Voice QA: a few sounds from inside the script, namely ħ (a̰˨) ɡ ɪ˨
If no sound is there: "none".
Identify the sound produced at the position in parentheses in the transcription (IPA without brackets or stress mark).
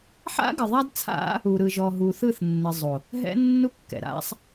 a̰˦